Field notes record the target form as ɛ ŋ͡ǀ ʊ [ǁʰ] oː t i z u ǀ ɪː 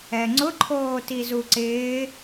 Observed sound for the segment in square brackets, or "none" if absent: ǃʰ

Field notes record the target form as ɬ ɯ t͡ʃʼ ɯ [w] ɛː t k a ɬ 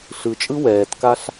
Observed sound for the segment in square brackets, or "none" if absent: w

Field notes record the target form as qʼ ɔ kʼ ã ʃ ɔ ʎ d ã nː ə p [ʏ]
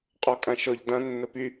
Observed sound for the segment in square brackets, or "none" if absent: y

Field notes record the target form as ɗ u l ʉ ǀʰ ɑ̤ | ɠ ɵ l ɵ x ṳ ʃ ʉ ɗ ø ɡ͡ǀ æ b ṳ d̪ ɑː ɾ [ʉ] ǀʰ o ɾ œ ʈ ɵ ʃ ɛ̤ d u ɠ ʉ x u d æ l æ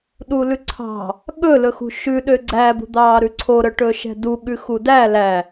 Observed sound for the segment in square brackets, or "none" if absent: ʉ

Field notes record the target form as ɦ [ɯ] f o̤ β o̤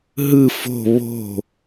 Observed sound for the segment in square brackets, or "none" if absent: ɯ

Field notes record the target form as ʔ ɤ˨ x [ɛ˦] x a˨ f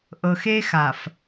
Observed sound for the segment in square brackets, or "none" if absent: e˦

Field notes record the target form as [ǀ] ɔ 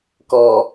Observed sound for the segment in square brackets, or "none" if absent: k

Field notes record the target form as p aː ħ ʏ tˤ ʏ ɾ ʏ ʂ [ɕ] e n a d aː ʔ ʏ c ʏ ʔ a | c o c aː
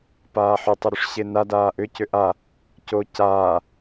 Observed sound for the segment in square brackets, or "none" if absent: ɕ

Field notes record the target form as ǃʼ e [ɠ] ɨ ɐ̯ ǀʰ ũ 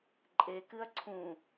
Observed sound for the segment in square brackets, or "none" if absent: k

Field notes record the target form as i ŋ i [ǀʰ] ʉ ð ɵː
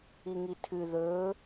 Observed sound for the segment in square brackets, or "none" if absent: tʰ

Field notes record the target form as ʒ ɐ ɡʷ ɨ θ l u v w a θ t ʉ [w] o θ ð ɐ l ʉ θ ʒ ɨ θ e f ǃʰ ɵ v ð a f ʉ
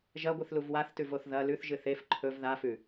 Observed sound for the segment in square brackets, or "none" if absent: v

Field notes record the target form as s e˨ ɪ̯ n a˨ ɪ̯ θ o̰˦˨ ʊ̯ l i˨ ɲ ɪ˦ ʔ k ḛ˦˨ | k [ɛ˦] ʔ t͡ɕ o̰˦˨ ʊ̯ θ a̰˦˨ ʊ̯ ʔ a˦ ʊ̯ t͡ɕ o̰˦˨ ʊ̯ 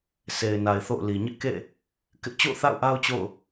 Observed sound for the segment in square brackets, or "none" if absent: ɪ˦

